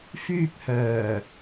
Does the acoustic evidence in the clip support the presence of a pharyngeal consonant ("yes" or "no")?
no